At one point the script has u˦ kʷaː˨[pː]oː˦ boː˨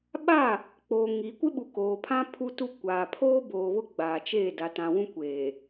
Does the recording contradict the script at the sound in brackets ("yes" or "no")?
yes